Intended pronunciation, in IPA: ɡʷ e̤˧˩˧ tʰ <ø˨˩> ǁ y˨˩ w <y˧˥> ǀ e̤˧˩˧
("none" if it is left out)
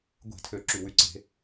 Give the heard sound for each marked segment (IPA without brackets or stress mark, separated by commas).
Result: ø˨˩, y˧˩˧